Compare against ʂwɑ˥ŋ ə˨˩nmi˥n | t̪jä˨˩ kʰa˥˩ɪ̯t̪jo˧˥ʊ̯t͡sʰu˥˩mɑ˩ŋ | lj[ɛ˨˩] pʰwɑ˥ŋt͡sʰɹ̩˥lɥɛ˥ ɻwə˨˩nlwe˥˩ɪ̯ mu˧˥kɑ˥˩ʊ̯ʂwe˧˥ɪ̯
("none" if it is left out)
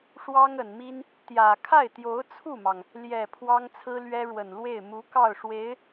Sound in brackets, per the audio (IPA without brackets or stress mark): ɛ˨˩